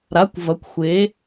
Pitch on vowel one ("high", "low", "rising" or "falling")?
rising